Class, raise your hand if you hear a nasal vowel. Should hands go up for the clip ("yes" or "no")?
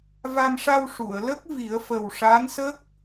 no